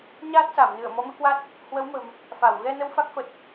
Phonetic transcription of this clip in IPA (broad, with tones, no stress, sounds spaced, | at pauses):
ɲ aː˦˥ t̚ s a˧˩ m n ɨ˧˩ ə̯ m ɔ˨˦ m ɨ˨˦ k w a˦˥ t̚ | h w ə˨˦ w m ə̤˨˩ m | f a˧˩ w ɣ ɛ˧ n ə˧ w f a˦˥ k̚ f ə˨˩ t̚